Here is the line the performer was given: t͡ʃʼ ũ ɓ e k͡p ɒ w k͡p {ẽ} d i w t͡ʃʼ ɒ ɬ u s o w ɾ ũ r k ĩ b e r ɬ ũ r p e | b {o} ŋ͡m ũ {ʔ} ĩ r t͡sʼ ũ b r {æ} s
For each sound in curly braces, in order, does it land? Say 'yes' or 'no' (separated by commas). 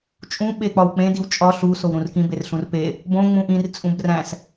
yes, no, yes, no